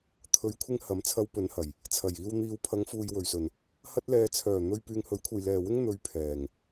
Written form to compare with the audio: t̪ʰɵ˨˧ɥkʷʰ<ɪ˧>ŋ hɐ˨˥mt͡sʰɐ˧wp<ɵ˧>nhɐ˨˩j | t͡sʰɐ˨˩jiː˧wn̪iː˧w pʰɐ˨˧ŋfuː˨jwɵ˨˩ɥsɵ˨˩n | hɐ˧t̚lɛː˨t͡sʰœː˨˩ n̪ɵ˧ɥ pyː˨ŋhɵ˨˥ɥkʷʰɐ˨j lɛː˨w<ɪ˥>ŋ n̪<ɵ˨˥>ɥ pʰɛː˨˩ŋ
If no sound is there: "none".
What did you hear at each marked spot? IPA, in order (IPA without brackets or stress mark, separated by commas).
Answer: ɪ˧, ɵ˨˧, ɪ˥, ɵ˨˧